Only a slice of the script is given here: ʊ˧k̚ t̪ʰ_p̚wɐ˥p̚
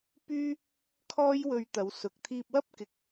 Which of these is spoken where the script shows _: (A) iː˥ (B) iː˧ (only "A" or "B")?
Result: B